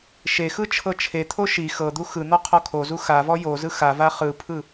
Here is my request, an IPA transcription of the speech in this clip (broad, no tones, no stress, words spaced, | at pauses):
ʃexɯ t͡ʃʰɤt͡ʃʰet̪ʰo ʃi xɤd̪u xɯn̪ɔ qʰɔkʰozu xavɔ jozɯ xava χɯpʰɯ